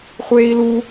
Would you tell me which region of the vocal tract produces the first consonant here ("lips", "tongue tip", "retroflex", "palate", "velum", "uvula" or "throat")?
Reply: uvula